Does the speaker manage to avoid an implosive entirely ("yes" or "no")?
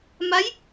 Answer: yes